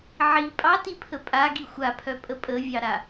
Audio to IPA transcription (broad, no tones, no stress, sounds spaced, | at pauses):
ʕ i pʼ ɑ t i pʰ ə pʼ a ɡ i xʷ a pʰ œ pʼ ə pʼ ə vʲ ɑ ɾ a